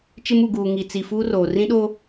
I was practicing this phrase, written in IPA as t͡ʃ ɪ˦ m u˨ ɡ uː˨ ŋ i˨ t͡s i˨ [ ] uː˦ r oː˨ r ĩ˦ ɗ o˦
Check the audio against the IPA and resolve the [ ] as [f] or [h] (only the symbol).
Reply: f